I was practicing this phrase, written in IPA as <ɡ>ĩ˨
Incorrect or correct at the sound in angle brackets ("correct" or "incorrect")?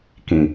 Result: incorrect